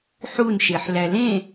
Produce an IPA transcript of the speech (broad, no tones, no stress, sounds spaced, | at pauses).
ħ u n ʃ e ħ l æ l ẽ